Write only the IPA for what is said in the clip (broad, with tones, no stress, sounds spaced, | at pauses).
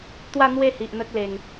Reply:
t̪ w a˥˧ n̪ w e˥˧ h i˨ ʔ n̪ ə˦ k̚ l e˨˩ ŋ